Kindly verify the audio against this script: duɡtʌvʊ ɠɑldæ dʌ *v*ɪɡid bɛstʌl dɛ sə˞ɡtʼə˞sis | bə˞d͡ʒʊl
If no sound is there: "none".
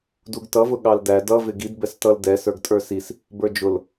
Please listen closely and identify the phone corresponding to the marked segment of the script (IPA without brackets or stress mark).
v